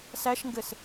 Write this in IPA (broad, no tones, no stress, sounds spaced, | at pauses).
s æ ʃ ŋ ɡ ɘ s